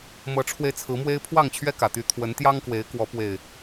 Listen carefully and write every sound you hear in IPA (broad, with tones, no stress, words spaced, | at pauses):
mɤ˨˦ʈ͡ʂʰwe˧ɪ̯t͡sʰɹ̩˨˦mwe˦ɪ̯ pʰwɑ˥˨ŋt͡ɕʰɥɛ˦kä˨˩t̪y˨˦ t̪ʰwə˨˦nt̪jɑ˦ŋkwe˨˦ɪ̯kwɔ˨˦ pwe˥˨ɪ̯